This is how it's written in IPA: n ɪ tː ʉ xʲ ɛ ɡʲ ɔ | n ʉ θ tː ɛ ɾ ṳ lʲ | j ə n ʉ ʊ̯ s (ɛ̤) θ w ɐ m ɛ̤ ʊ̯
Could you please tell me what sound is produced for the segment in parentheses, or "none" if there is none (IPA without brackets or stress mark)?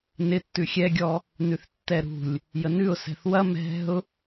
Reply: ɛ̤